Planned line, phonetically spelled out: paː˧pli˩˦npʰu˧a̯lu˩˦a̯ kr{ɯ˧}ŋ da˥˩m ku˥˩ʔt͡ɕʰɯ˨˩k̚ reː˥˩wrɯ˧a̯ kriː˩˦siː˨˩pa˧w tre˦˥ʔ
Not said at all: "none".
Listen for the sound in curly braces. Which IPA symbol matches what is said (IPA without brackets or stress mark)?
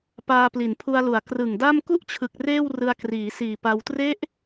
ɯ˨˩